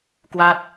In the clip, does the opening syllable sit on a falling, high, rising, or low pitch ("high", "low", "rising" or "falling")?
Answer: falling